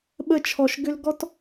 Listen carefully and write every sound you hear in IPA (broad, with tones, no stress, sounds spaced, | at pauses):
ɓ ə˦˨ t͡ʃʰ ɔ˨ ʃ ɡ ʏ˦ l ɡ ɔ˦ t